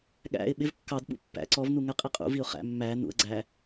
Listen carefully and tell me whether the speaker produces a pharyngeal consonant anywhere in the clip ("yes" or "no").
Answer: no